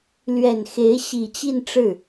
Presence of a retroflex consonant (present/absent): present